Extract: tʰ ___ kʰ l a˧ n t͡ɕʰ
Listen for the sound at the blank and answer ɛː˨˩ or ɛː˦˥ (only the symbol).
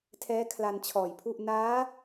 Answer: ɛː˦˥